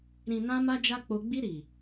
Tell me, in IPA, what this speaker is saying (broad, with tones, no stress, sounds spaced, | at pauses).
ɾ ĩ˨ n ã˧ m a˦ d͡ʒ a˦ k͡p o˧ ɡ͡b i˧ ɾ i˨